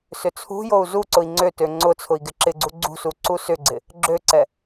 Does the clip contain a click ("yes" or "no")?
yes